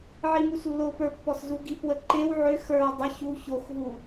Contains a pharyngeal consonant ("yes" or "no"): yes